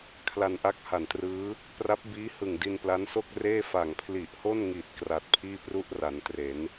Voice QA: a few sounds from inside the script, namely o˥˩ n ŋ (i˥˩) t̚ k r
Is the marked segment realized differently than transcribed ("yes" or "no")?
yes